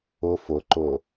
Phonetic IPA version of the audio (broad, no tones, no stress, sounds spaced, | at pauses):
ʊ f ʊ ǃ ʊ